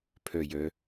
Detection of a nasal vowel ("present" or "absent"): absent